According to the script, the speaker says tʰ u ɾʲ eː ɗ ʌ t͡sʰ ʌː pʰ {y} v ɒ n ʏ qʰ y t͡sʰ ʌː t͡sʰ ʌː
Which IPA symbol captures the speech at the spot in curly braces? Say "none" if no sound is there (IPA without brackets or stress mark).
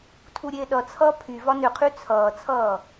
y